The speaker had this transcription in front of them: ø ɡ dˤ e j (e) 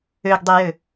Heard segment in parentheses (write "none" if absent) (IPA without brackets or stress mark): ø